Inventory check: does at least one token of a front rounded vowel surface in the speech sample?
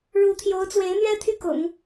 yes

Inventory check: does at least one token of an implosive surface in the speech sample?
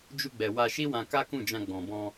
no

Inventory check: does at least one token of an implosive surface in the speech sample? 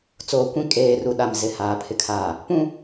yes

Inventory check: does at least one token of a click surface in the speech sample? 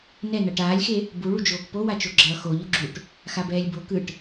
yes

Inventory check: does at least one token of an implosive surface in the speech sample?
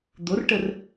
no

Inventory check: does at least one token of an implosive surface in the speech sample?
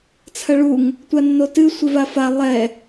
no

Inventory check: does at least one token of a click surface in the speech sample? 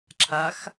yes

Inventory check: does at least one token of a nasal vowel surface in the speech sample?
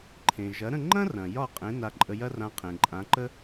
yes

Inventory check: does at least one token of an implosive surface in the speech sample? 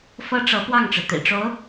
no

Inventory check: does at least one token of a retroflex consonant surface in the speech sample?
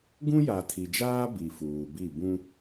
no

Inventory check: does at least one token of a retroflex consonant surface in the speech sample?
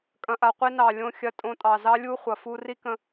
no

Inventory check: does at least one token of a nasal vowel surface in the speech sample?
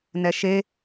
no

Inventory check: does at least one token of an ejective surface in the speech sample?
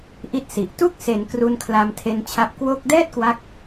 no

